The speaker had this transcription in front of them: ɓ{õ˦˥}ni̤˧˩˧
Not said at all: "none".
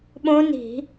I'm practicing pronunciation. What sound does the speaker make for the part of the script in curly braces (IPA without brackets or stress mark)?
õ˦˥